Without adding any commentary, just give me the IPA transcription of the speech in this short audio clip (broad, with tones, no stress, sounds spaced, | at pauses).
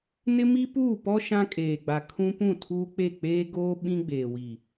n ɪ˦ m i˦ p uː˦˨ p ɔ˦ ʃ ã˦ kʼ eː˨ ɡ͡b a˨ kʰ ũ˦ p ũ˦˨ tʰ uː˦ k͡p e˦˨ k͡p eː˦ ɡ oː˦ ɓ ĩ˦ ɡ͡b eː˨ w i˨